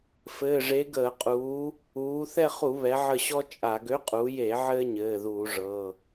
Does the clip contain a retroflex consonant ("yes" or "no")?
yes